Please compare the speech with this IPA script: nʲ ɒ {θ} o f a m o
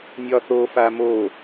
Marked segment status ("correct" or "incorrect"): correct